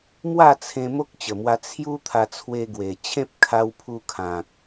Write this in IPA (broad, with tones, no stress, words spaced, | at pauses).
mwa˥˧t͡sʰẽ˧ mo˦k̚t͡ɕə˨˩mwa˧ t͡sʰju˦t̪ʰa˧ t͡sʰwe˧ɡwe˨˩t͡ɕʰẽ˦p̚ kʰa˧wpʰu˧ kʰã˨k̚